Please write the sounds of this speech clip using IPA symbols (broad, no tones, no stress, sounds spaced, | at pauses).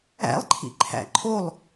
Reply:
æ̰ lˠ ǃʰ ḭ ǃʰ æ̰ ǃʰ o lˠ